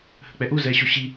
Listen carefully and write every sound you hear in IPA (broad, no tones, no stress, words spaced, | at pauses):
hə̤k͡pɛʔu zɛɕoɕi